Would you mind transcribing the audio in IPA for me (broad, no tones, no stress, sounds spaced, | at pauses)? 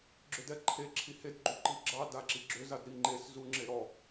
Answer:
ɡ͡ǁ ʏ d ɛ ǃʰ e ǁʰ i h e d ɡ͡ǃ u ǃ i ɡ͡ǁ ɑ d a ǁ i ɡ͡ǁ ʏ z a d ɾ i ŋ͡ǃ e s z u ŋ͡ǁ e ɾ ɔ